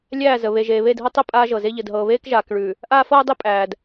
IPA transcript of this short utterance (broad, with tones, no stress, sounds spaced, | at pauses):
lʲ æː˦˨ z ə˨ β e˨ ʒ eː˨ β eː˦˨ d ɦ ɤ˦ tˤ ə˦˨ pʼ aː˦ ʒ ɤ˨ z e˦ ʎ ə˨ d ɦ ɤː˨ β eː˦ k ʒ aː˨ k ɭ ʉ˨ | ʔ aː˦ f ɤː˦ dˤ e˦ pʼ æː˨ d